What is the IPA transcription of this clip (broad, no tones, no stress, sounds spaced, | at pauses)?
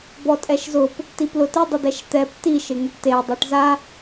b ɔ tʼ ɛ ʃ z ʊ p | t i p l ʊ t ɪ dˤ ɪ d ɛ ʃ t̪ ɛ p t i ʃ ɪ ŋ ʊ ʈ t e dˤ ɛ ʈ z a